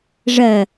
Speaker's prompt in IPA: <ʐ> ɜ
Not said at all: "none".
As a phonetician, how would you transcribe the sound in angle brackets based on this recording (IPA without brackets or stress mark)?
ʐ